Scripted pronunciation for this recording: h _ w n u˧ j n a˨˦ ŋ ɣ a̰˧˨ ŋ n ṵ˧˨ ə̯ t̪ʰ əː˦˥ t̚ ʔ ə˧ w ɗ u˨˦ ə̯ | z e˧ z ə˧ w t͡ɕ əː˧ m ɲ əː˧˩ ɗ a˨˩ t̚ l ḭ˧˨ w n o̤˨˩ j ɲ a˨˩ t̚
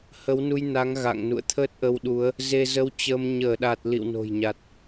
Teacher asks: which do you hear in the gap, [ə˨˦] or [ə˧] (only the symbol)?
ə˨˦